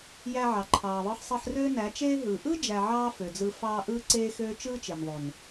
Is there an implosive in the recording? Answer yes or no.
no